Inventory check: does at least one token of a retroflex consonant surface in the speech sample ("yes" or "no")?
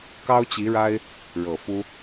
yes